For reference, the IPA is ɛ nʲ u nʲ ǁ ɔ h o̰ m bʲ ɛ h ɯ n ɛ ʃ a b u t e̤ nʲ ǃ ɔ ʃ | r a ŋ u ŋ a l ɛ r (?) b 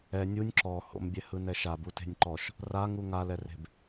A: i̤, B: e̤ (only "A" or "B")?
B